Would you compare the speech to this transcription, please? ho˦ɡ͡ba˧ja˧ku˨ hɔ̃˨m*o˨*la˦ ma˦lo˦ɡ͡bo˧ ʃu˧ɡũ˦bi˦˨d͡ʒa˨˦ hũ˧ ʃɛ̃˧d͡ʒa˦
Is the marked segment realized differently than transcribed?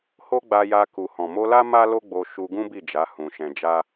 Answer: yes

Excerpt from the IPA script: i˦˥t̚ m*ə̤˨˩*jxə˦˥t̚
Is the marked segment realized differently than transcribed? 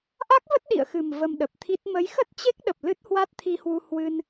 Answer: yes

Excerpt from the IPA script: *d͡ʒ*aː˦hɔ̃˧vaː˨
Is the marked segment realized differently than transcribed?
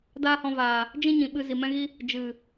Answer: yes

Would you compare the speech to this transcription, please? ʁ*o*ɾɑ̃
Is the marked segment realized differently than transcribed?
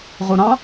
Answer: yes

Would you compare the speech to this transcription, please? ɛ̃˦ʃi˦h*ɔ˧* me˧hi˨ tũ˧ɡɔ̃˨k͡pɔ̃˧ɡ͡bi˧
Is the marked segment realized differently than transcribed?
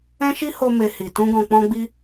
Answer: yes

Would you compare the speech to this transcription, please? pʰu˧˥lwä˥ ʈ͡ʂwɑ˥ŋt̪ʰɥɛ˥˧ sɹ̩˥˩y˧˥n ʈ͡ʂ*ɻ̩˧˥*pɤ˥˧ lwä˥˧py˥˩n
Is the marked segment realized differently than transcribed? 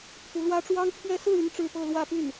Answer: yes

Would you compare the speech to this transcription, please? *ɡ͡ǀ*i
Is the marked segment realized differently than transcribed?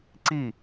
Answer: yes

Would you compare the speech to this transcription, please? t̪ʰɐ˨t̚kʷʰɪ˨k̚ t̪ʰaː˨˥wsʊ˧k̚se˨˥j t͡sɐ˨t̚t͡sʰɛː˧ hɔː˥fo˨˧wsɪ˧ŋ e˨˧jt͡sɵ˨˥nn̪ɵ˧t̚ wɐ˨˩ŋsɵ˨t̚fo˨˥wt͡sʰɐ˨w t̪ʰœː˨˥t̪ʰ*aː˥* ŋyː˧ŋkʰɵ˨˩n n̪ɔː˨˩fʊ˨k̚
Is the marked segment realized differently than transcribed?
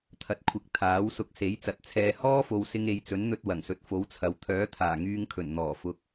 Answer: yes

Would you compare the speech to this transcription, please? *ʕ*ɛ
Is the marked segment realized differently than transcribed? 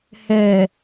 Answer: yes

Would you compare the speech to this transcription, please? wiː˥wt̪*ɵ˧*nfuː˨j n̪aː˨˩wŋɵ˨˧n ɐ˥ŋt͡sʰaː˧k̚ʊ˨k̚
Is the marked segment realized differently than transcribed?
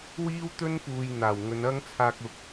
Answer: yes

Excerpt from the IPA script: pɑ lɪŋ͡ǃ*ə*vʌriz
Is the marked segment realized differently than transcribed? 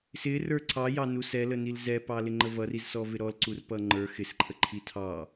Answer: no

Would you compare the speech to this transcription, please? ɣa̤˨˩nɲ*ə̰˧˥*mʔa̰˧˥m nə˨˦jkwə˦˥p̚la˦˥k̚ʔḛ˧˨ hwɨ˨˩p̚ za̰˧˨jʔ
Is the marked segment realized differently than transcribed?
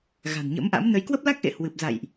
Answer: no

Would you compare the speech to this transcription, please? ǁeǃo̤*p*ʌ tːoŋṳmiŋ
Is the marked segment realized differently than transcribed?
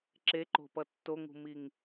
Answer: no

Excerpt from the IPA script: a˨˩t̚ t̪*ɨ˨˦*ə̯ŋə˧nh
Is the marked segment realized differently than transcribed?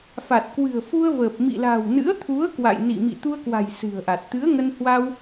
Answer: no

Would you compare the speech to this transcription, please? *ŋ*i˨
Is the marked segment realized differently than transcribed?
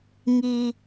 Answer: no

